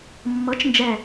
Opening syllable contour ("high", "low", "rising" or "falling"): rising